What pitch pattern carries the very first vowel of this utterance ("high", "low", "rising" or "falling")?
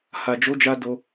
low